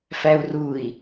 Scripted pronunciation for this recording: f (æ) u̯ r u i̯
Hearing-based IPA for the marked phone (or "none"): æ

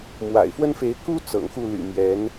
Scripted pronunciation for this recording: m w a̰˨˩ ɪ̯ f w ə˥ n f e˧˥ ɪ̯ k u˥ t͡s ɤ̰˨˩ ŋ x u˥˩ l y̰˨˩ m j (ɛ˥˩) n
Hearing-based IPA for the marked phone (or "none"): ɛ˧˥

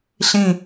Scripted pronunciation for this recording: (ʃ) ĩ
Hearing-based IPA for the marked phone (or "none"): ɬ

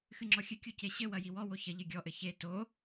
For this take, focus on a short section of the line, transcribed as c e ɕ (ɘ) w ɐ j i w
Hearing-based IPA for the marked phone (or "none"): ɘ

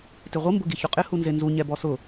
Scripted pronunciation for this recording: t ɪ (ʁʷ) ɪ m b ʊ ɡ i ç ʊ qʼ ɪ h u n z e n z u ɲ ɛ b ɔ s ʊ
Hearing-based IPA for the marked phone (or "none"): ʁʷ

